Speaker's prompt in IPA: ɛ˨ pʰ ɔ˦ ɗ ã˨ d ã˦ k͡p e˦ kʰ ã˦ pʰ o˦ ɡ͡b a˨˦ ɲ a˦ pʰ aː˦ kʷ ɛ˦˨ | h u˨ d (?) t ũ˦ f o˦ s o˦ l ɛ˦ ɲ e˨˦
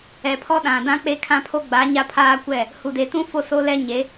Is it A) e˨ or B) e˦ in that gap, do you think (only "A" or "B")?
A